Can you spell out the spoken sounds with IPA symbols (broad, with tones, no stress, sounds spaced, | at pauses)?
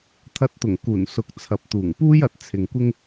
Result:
t̪ʰ ɐ˧ t̚ t̪ ʊ˨˩ ŋ k uː˨˩ n s ʊ˨ k̚ t͡sʰ ɐ˨ p̚ t̪ uː˨˩ ŋ p uː˥ j ɐ˨ t̚ t͡sʰ ɪ˨ ŋ kʷ ɪ˥ ŋ